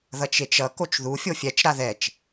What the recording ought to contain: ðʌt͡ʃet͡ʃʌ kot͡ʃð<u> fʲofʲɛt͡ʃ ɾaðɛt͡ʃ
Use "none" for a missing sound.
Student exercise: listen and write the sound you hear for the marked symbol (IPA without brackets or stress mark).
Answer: u